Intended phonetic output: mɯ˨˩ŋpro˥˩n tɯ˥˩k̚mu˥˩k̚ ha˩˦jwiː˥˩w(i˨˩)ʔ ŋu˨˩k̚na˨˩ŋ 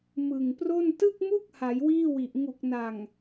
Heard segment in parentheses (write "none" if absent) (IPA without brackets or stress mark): i˨˩